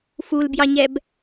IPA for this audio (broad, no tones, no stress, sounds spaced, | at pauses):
f u l b j ɑ ɲ ɛ b